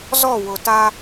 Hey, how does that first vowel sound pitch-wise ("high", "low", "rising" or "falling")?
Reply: falling